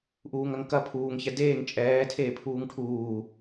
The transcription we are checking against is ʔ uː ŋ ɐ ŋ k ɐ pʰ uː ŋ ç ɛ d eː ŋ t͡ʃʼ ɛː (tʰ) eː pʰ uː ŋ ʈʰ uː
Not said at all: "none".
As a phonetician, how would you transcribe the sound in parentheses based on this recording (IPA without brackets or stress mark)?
tʰ